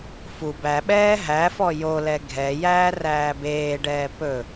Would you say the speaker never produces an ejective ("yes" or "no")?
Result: yes